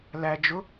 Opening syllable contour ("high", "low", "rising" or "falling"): low